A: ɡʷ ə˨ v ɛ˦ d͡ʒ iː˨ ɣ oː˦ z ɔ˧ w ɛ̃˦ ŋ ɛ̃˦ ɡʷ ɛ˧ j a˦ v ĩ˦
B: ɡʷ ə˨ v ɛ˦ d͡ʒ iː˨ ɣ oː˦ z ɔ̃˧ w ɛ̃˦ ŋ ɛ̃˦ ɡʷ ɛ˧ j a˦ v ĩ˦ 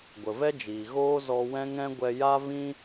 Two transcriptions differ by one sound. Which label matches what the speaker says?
A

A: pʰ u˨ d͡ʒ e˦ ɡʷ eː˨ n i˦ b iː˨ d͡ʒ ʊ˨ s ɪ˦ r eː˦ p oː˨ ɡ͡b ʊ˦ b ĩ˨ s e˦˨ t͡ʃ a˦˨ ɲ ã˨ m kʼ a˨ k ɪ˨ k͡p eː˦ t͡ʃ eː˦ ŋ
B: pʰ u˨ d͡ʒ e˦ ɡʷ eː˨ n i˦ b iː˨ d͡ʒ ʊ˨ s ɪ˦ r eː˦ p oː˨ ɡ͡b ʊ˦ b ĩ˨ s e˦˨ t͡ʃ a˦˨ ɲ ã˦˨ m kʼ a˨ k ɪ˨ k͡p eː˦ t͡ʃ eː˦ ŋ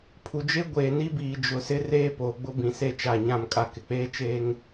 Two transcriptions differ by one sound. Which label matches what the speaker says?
B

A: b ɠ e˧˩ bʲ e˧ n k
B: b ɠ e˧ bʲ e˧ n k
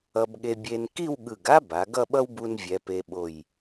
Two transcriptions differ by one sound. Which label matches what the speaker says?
B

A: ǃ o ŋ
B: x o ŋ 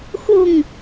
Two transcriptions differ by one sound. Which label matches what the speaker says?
B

